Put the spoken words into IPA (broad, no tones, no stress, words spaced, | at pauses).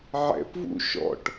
ʕɛ̰pvṵ ʃɔ̰ʈ